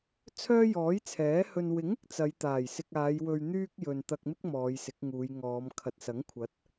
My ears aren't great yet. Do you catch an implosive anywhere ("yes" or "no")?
no